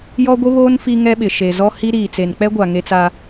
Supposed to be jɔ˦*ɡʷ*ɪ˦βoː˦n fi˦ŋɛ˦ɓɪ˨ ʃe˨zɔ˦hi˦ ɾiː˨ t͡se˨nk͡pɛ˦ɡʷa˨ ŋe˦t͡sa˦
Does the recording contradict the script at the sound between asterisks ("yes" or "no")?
no